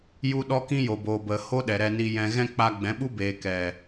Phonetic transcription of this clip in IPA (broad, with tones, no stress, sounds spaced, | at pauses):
j u˦ ɗ ɔ˦ k ĩ˦ j o˨ b o˨ b ə˨ h o˦ ɗ ɛ˨ ɾ ɛ˨ n i˨ j ɛ̃˨ ɣ ɛ̃˧ k͡p a˧ ɡ͡b ɛ̃˨˦ ɓ u˦ b eː˨ k ɛ˨